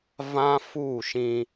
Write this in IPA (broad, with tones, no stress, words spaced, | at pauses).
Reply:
vã˦fu˦˨ʃĩ˦